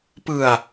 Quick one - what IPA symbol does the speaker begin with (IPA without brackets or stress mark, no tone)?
p